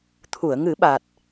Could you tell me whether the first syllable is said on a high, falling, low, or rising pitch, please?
low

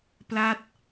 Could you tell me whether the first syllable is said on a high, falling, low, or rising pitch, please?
falling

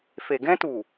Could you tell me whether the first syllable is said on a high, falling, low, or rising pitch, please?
low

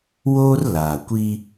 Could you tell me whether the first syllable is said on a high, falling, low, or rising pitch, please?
high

